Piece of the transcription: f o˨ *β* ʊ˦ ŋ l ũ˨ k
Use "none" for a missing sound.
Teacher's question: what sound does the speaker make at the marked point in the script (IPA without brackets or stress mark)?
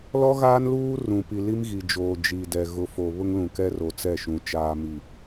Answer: β